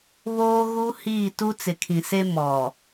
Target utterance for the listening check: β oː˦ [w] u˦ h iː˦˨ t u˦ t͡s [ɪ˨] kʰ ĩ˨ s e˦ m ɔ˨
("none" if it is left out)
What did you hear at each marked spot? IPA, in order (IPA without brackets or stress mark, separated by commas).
ɣ, ɪ˨